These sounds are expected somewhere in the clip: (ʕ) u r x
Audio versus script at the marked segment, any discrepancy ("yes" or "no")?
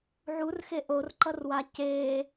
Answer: no